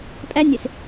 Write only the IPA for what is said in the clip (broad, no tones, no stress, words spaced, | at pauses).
pʼænʲes